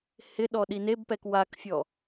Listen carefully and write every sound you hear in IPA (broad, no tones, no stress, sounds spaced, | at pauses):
h ɪ ɗ ɔ ɗ i n e b p ɛ k w a k fʲ ɔ